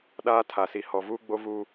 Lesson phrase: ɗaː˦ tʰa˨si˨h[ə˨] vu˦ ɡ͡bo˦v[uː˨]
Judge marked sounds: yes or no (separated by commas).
no, no